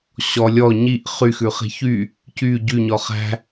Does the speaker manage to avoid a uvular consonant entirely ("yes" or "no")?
no